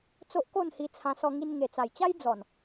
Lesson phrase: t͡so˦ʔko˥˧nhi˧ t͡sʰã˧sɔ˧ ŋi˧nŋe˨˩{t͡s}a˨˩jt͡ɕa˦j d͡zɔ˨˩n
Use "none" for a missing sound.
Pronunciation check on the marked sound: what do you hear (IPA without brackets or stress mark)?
t͡s